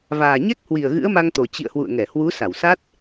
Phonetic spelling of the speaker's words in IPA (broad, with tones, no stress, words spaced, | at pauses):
vaː˨˩ɲɛ˦˥k̚ hwi˨˩ə̯ ɣɨ̰˧˥ə̯ma˧ŋt̪o˨˩ t͡ɕḭ˧˨ə̯hwṵ˧˨ə̯ŋɛ˧˩hwu˨˦ sa˧˩wsa˦˥t̚